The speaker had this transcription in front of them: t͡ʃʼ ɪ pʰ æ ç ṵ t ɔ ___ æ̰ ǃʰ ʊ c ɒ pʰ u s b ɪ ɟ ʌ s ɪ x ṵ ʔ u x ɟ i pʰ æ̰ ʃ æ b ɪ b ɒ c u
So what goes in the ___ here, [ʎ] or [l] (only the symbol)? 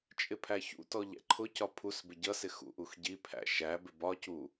ʎ